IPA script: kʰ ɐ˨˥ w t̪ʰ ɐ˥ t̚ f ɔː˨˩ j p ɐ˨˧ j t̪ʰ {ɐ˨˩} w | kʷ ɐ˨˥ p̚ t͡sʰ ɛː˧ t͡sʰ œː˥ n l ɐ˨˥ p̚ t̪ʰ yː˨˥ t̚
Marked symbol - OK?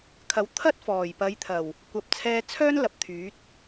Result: yes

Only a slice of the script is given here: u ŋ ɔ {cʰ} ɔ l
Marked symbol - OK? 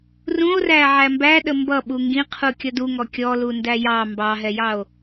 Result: no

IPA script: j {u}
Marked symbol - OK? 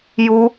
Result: yes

